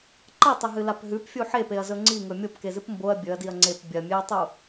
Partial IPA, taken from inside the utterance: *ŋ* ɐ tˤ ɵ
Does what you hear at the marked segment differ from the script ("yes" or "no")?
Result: yes